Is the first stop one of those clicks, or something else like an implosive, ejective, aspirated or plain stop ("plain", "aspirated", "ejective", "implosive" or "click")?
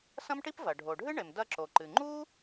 plain